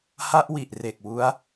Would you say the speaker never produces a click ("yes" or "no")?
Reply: yes